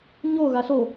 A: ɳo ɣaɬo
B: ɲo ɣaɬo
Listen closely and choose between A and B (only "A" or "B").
B